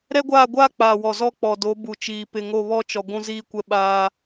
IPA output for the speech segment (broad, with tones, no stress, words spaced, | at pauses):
ɾɛ˦ɡʷaː˦˨ɡʷaː˦ k͡paː˨wɔ˨zɔ˦ k͡pɔ˨do˨˦ bu˨t͡ʃiː˨ pɪ˨ŋo˦˨βɔ˦t͡ʃɔ˨ ɡʷũ˦ziː˦kʷɛ˦ɓaː˦